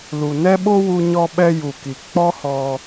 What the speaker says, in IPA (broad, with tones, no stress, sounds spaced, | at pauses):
l u˨ n ɛ˦ ɓ o˦ w u˧ ɲ ɔ˧ ɓ ɛ˧ j u˨ k i˨ k͡p ɔ˦ h ɔ˧